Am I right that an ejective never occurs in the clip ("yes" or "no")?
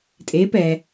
no